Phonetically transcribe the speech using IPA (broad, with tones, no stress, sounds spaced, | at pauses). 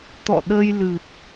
t̪ ɔ̰˧˨ ɗ ə˧ j l ɨ˨˩ t̚